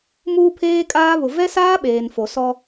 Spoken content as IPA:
m uː˦ pʰ eː˦ kʼ aː˦ β ʊ˨ v ɛ˦ s aː˦ ɓ eː˨ n f o˨ s ɔ˦

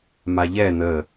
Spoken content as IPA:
m a ʎ ɛ n̪ ə

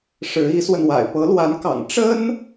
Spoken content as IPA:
ʂ ɻ̩˧˥ i˧˥ s w ə˧ n w a̰˨˩ ɪ̯ p ɤ˧˥ l w a˧˥ n k ɑ̰˨˩ ŋ ʈ͡ʂ ə˥ n

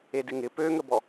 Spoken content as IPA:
e d ɪ ŋ ɪ p ø ŋ ə b ɔ

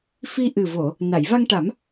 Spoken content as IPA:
f i˧ ʔ ɨ˨˩ v o˨˩˨ | n a˨˩˨ j v a˧ ŋ ʈ a˨˩˦ m

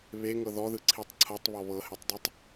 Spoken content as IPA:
β e ŋ ɤ ð ɔ ð ɯ ǀʰ i tˤ ǀʰ ɤ tˤ β ɔ β ɤ h e tˤ dˤ ɯ tˤ

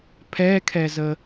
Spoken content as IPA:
pʰ ɛ kʰ ɛ z ə

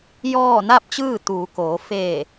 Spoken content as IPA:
j ɔː˥˨ n a˥˨ p̚ t͡ɕ ɯː˥˨ t̪ uː˩˧ k oː˩˧ f eː˧˩

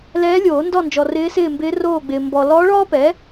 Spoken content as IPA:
l ɛː˧˥ lʲ oː˨˩˦ n d ɔ˥˨ n d͡ʒ ɔ˨ r ɪː˧˥ s ɪː˥˨ m b ɪː˧˥ r oː˥˨ ɡ͡b ɪː˨ m b ɔ˨ l ɔː˧˥ ɭ ɔː˥ p ɛ˩˥

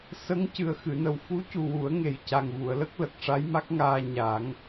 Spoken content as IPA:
s ə˧˥ ŋ c ɨ˨˩ ə̯ x ɨ˨˩˨ n ə˨˩ w f u˧˥ c u˨˩ w u˨˩˦ ə̯ ŋ e˨˩ j c a˨˩ ŋ v u˨˩˨ ə̯ l ə˦˥ k̚ l ə˨˩ k̚ ʂ a˧˥ j m a˦˥ k̚ ŋ aː˧ ɲ a˨˩˦ ŋ

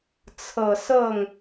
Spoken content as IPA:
t͡sʰ ɤ˨˩ s ɤ˥˩ ŋ

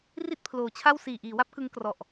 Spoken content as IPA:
r i˥˩ t̚ pʰ l oː˩˦ t͡ɕʰ a˥˩ w s iː˨˩ ʔ iː˩˦ w a˥˩ p̚ k ɯ˦˥ ŋ k r ɔ˨˩ ʔ

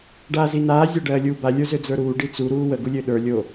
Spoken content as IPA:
ɖ aː z i n aː zʲ a ɖ ɜː lʲ uː b a lʲ ə˞ z ø d͡z ə˞ ɾ uː ɖ i t͡s u ɾ uː w ə ɡ u lʲ ø ɗ ə˞ lʲ o

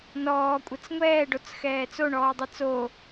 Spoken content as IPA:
n ɔː kʷʼ ɘ t͡s ŋʷ ɛː ɖ o t͡s x ɛː t͡s o ɳ ɔː dˤ ɛ t͡s o

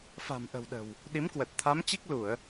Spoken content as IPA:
f a̤˨˩ m ʔ ə̤˨˩ w ɗ ə̤˨˩ w | ɗ i˨˦ m k w ə˨˩ t̚ t̪ʰ a˨˦ m t͡ɕ i˦˥ k̚ l u˧˩˨ ə̯

